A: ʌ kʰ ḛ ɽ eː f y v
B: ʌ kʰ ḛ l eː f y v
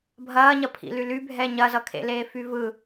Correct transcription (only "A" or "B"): B